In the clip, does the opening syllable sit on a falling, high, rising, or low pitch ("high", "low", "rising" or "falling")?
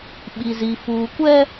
low